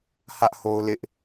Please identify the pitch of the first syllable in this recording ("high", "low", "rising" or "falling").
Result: high